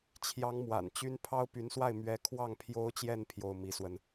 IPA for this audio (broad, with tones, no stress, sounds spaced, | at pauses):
t͡ɕʰ j ɑ˧˥ ŋ m w a̰˨˩ n t͡ɕ y˥ n pʰ ɑ˥ ʊ̯ p y˧˥ n s w a˥˩ ɪ̯ m ɥ ɛ˥ kʰ w ɑ˥˩ ŋ pʰ j o˥ ʊ̯ t͡ɕ j ɛ˥˧ n pʰ j o˥˩ ʊ̯ m i˧˥ s w ə˧ n